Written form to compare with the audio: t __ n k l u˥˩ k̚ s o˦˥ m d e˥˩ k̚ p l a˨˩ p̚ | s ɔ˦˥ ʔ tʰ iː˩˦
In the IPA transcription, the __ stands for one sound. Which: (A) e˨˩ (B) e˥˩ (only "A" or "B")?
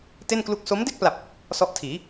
B